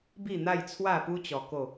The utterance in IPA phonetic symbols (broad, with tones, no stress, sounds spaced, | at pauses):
b i˥˧ n̪ a˥˧ j t͡sʰ w a˥˧ p u˦ t͡ɕ ɔ˧ k o˥˧